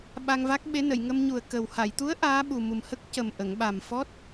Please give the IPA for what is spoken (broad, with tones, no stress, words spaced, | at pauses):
ɓa˧ŋva˦˥k̚ɓe˧˥nə˨˩˨j ŋə˧mɲu˨˩ə̯ kə˨˩w ha˨˩˨jt̪u˧˥ə̯ ʔaː˧˥ɓu˨˩ mu˨˩mhə˦˥k̚cə˨˩m ʔə˨˩˨ŋ ɓa˨˩mfɔ˦˥t̚